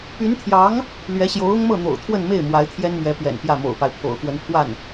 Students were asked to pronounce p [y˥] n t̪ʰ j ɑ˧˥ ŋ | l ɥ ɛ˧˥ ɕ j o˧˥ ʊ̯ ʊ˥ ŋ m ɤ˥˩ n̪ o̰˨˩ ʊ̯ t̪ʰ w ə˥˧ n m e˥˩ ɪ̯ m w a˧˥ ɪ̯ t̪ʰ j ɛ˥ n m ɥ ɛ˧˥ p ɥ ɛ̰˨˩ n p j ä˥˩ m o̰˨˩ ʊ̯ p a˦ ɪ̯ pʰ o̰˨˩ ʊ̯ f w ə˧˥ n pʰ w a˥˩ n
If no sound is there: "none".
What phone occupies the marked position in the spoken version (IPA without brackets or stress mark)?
y˧˥